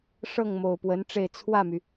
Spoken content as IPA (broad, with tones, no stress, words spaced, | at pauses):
ʂɤ˥˩ŋmo˨˩ʊ̯pwə˧˥nʈ͡ʂe˥˧ɪ̯ t͡sʰwä˥˩my˩